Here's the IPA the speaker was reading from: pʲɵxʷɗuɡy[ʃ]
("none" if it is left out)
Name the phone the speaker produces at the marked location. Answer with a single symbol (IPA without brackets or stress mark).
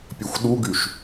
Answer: ʃ